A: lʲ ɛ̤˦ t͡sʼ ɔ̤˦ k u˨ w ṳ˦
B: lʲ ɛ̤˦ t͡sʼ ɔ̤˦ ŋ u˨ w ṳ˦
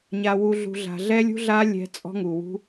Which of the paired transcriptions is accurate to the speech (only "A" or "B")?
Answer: B